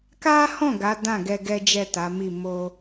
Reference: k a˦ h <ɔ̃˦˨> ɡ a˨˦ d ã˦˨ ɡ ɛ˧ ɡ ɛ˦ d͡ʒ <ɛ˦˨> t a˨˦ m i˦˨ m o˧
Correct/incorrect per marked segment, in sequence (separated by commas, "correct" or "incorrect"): correct, correct